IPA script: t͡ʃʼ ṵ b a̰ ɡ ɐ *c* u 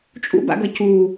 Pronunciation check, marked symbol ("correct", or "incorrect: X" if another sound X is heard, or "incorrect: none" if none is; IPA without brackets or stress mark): correct